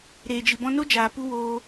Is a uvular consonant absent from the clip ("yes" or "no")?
yes